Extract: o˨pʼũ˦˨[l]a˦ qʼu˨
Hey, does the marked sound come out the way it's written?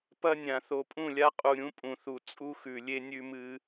no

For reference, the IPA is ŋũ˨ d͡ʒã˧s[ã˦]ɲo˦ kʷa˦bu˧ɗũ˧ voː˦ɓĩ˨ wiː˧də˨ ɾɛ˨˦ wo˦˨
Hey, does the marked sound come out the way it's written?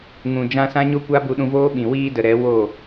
yes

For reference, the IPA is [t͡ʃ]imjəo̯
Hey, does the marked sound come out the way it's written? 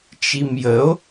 yes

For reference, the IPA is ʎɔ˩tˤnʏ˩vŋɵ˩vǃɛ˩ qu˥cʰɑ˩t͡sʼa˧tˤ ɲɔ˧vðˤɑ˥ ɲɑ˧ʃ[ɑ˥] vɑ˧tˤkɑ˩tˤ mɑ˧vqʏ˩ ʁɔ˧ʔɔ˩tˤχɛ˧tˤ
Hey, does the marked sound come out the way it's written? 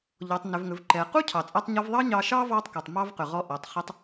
yes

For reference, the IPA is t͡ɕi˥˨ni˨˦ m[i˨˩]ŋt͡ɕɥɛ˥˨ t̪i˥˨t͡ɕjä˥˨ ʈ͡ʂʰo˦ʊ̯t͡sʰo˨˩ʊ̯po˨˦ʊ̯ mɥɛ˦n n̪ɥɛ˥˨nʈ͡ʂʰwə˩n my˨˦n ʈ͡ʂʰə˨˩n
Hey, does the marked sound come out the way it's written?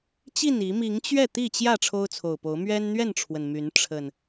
no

